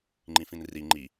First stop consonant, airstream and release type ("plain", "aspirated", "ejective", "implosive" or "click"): click